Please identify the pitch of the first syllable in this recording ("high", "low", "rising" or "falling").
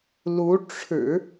rising